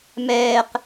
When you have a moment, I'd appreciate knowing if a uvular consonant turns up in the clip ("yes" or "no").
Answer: yes